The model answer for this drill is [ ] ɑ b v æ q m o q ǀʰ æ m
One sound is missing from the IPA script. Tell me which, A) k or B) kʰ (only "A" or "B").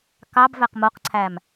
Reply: A